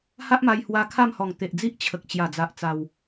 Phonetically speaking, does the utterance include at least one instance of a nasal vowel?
no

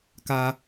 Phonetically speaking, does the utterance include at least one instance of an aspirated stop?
no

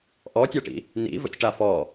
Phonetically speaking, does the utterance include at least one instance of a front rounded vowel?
no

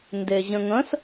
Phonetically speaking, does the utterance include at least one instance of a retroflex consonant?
no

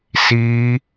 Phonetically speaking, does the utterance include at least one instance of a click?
no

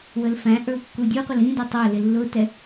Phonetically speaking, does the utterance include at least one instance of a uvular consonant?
yes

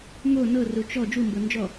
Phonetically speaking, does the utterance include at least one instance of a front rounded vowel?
no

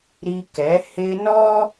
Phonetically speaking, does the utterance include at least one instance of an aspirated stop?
no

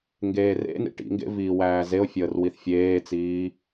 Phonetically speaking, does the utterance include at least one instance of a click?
no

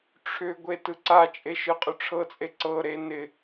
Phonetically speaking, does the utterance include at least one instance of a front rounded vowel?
yes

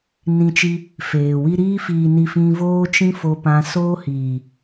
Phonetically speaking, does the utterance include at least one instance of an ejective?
no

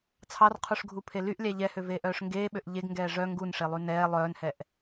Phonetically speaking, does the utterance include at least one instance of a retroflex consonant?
yes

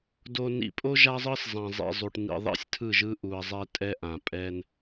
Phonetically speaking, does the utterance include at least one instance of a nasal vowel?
yes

